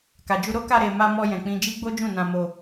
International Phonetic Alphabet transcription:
k a˨ d͡ʒ u˧ ɾ o˦ k a˧ ɾ e˨ m a˧ m ɔ˧ j ɛ̃˨ k͡p ĩ˧ d͡ʒ i˦ ɡ͡b o˦ d͡ʒ ũ˦˨ n ã˧ m o˧

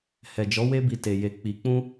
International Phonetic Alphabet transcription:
h ɛ˨ d͡ʒ ɔ˨˦ w e˦ b i˧ t e˧ j e˧ k͡p i˧ k͡p ũ˦

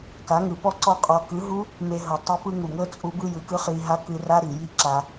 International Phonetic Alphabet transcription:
k a˨˦ ŋ ɯ˨ p ɔ˦ ǀ ɔ˦ qʼ ɔ˧ k ɯ˨˦ ɦ u˦ | m e˧ ɦ ɤ˨ tˤ ɛ˦ p ɯ˦ ŋ u˨ ŋ ɤ˦ t͡sʼ u˦ b ɯ˦ j ɯ˨˦ k ɯ˦ χ i˧ ɦ a˦ k ɯ˧ r a˦ ɾ i˨ j i˦ ǁ a˧

